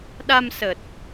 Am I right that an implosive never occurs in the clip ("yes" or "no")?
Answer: no